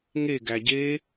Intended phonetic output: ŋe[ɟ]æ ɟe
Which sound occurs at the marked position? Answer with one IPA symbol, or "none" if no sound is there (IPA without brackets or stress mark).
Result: ɡ